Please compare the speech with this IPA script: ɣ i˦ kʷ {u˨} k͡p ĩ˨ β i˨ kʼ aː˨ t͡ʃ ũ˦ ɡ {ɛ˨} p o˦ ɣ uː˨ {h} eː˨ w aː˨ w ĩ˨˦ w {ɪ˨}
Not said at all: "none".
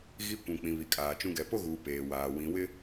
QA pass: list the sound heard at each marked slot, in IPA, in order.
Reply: ũ˨, ɛ˨, p, ɪ˦

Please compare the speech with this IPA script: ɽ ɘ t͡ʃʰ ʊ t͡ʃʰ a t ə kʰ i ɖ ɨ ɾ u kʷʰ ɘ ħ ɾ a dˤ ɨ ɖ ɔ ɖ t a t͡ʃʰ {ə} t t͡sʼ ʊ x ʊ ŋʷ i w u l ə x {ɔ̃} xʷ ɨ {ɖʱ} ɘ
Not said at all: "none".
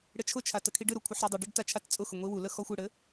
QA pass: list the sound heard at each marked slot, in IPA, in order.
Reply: a, ɔ, ɽ

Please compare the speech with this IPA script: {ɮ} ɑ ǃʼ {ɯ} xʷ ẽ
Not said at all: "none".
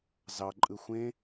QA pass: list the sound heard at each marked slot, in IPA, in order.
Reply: z, ɯ

